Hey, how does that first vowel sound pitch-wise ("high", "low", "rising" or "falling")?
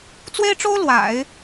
high